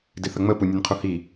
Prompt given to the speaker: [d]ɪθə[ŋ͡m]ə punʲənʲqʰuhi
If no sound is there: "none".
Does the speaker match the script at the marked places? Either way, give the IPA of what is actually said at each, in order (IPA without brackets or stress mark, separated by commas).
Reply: d, ŋ͡m